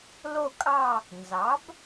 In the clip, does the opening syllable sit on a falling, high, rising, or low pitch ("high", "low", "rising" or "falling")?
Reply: falling